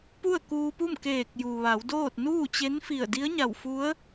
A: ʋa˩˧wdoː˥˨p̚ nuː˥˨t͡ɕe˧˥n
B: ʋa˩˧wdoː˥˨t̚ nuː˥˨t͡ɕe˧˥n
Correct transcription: B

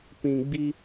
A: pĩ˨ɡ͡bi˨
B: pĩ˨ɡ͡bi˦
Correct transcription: B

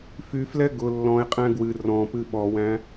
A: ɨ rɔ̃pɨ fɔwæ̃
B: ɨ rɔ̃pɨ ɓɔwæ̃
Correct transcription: B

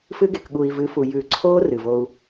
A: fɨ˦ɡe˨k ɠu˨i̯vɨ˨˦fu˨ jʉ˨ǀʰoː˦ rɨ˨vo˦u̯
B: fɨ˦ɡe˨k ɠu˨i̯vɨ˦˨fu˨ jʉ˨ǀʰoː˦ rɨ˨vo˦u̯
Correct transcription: A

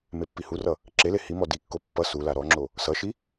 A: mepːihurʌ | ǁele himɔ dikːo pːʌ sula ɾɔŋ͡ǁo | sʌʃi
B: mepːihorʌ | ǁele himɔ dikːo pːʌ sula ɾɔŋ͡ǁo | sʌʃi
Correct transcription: A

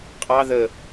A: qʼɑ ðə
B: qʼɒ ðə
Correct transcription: A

